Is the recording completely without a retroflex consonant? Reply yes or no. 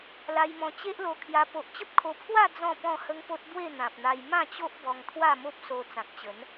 yes